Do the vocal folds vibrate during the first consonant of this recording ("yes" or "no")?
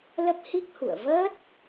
yes